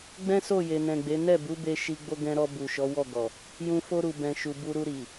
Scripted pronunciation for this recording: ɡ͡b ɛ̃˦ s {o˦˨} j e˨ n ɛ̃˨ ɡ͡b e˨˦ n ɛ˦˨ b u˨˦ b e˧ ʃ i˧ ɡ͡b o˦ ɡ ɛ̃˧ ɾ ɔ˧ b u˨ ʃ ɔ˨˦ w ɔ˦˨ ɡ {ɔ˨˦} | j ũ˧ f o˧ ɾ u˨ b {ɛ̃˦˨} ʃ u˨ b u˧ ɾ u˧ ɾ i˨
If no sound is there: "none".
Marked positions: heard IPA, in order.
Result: o˦˨, ɔ˨, ɛ̃˨

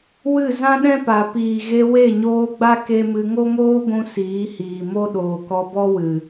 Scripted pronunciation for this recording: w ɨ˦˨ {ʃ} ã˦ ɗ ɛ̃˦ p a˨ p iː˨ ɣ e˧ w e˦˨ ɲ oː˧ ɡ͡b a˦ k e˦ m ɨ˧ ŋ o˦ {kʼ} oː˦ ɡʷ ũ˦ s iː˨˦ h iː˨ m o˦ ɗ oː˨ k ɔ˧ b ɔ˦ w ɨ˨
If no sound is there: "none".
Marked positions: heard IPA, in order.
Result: z, ŋ

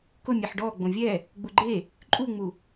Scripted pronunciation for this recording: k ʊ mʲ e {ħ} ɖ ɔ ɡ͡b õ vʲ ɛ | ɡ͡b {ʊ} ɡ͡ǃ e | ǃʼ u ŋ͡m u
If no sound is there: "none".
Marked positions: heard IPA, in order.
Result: ħ, u

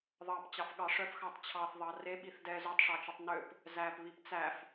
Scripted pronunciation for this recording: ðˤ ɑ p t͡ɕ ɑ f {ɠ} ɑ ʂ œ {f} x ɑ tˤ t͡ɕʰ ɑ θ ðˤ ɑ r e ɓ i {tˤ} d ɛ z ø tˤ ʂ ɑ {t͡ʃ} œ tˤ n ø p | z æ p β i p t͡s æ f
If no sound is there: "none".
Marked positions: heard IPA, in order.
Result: ɠ, f, θ, t͡ʃ

